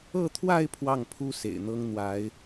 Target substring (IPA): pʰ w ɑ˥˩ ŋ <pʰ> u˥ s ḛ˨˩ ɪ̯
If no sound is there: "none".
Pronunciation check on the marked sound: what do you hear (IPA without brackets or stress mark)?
pʰ